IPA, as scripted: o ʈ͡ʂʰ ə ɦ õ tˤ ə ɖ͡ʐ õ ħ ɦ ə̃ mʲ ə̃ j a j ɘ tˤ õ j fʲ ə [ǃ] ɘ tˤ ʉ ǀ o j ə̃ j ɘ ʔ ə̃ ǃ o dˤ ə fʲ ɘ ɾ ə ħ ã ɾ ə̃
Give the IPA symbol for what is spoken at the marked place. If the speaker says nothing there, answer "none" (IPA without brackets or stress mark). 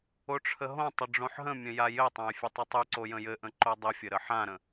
tˤ